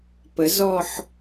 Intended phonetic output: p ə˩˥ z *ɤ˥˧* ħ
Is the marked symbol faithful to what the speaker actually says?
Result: no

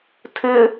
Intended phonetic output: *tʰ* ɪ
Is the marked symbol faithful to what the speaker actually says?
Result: yes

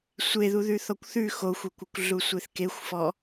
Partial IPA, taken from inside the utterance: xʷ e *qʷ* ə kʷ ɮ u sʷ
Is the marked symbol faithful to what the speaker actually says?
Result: no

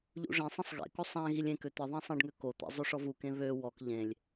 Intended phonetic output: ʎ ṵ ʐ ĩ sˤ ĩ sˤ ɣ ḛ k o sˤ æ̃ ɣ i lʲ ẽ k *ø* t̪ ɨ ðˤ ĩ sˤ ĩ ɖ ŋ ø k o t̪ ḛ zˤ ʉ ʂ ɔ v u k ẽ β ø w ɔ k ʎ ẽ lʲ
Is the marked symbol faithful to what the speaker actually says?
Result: yes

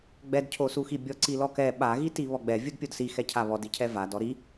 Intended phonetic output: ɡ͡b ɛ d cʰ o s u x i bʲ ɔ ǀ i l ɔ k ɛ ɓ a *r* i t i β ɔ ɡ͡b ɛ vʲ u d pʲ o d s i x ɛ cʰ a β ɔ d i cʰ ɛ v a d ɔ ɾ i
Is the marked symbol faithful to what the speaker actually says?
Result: no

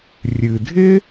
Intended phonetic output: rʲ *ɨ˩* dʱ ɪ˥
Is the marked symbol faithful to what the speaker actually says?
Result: yes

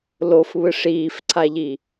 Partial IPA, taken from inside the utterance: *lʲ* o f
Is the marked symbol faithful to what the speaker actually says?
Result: no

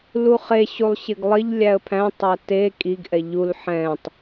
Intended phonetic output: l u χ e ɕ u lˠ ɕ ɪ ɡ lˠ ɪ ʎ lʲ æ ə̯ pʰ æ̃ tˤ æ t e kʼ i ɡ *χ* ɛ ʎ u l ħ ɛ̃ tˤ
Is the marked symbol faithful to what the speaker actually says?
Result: no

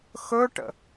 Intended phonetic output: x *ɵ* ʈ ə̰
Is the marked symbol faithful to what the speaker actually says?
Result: yes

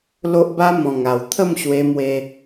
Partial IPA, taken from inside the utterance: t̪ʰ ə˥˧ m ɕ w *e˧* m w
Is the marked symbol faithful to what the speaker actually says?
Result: yes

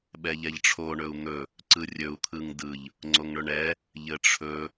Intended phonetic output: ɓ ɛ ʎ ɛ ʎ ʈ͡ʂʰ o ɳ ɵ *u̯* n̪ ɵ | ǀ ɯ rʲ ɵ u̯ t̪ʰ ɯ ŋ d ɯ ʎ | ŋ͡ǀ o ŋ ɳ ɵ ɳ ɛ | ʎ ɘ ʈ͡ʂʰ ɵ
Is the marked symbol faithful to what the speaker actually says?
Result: yes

